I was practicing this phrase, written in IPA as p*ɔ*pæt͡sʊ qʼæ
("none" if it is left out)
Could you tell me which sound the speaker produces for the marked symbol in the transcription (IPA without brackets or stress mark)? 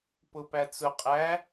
ʊ